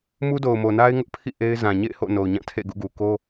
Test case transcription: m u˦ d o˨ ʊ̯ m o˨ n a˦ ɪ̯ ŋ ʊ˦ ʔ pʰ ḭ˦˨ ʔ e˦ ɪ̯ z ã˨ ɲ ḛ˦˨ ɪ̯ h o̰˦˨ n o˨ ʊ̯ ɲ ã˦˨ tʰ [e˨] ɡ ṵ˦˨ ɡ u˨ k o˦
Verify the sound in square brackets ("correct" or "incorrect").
incorrect